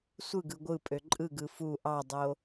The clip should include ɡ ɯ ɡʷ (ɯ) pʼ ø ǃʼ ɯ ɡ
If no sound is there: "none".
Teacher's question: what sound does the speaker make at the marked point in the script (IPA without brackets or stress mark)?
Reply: ɯ